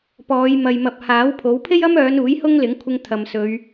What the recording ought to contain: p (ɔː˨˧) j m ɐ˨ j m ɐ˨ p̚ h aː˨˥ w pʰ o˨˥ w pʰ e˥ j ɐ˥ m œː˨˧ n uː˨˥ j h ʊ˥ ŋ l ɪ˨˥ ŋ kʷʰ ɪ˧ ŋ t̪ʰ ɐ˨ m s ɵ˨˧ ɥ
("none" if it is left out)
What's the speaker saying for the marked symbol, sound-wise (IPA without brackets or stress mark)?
ɔː˨˧